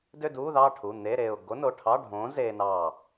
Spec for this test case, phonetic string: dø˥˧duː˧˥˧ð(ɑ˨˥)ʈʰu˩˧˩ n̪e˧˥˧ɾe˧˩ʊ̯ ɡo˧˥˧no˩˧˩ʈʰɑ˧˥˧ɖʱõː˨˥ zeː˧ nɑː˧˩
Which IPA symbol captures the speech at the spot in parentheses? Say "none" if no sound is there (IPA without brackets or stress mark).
ɑ˥˧